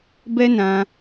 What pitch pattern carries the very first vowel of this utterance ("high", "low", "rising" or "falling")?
high